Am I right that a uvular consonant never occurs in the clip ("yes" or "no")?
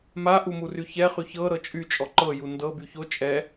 no